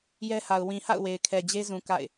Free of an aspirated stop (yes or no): no